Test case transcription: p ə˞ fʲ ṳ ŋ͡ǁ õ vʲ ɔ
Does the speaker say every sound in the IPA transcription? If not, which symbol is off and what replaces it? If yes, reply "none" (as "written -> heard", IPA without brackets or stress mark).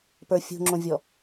none